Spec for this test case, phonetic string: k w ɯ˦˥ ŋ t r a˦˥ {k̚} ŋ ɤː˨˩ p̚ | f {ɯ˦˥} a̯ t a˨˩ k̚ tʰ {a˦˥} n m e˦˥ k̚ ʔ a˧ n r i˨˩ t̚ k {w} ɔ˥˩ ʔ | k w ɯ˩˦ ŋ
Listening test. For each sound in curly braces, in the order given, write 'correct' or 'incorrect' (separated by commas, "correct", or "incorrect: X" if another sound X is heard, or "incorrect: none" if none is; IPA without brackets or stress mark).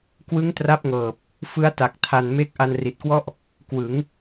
incorrect: p̚, correct, incorrect: a˨˩, correct